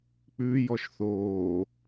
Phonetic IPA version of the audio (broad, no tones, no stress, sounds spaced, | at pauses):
k͡p ʉ j ɔ ʃ θ oː